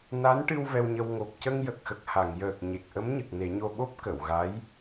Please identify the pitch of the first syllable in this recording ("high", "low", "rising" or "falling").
rising